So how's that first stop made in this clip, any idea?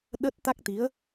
implosive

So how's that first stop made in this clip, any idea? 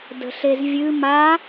plain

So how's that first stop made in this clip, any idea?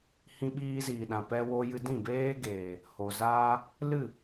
implosive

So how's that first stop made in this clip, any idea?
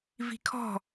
aspirated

